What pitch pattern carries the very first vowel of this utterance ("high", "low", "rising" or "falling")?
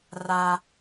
low